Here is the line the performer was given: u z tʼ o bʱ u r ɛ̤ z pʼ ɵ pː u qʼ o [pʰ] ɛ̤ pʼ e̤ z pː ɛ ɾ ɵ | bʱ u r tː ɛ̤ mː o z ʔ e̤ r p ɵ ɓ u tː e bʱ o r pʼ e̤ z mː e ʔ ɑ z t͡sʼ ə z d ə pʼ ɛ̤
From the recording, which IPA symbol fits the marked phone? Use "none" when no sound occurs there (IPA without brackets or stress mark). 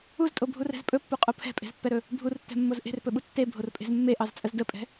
pʰ